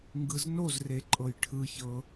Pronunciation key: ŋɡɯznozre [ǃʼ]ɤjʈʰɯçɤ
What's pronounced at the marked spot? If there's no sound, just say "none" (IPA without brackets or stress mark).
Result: ǃʼ